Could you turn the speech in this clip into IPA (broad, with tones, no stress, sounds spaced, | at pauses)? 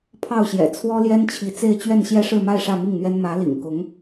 pʰ ɑ˥˩ ʊ̯ ɕ j ɛ̰˨˩ t͡sʰ w ɔ˥ l j ɛ˥ n t͡ɕʰ i˧˥ t͡s e˥˧ ɪ̯ t͡ɕ ɥ ɛ˥˧ n ɕ j ɛ˥˧ ʂ ɻ̩˥˧ m a˥˧ ɪ̯ ʂ ä˥˧ m i˥˩ ŋ n̪ ɥ ɛ˥ n m ä˧˥ l ḭ˨˩ ŋ k ʊ˧˥ ŋ